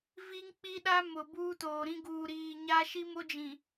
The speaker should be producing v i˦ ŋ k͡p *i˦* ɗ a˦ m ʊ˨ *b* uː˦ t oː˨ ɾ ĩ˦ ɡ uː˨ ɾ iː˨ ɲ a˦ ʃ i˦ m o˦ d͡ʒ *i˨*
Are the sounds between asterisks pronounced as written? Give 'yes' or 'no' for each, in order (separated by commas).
yes, yes, no